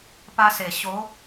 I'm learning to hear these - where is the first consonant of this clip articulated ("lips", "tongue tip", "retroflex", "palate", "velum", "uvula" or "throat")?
lips